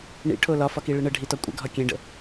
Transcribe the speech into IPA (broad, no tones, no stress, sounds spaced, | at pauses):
ɳ ḭ ʈʰ o l ɒ f ɒ k i ɭ e ɳ ə ɖʱ i t ɒ kʷʼ ə̰ ɡʱ ɒ kʲ ẽ ɖ ə̰